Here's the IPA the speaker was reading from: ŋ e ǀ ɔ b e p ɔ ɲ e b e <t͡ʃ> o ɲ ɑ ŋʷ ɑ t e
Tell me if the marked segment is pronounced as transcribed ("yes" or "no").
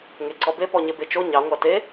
yes